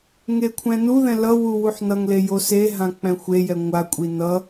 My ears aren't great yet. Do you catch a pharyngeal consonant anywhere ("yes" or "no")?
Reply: yes